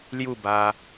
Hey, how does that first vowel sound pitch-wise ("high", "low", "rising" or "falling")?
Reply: falling